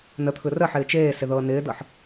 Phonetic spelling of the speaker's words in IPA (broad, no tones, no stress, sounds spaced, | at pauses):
n ə t̪ʰ ɯ r ə ħ ɪː t͡ʃ eː s ɪ ð ɤː n ɪː d ɤ ħ